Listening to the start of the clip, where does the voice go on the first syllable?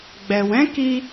low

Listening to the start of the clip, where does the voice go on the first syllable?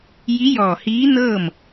rising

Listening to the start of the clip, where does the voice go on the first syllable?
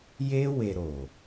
high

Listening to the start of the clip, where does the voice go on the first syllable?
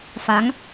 rising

